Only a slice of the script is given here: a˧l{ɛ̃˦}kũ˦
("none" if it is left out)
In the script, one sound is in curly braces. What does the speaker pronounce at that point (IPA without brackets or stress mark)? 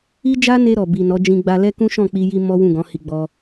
ɛ˦